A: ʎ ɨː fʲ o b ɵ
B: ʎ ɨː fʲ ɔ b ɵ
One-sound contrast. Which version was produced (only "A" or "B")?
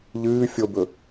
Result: A